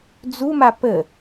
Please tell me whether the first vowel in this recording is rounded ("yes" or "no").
yes